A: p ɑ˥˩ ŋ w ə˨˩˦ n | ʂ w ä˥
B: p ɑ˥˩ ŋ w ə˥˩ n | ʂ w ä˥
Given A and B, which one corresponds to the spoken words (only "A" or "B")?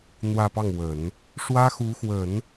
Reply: A